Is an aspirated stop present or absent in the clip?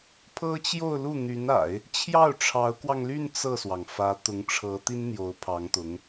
present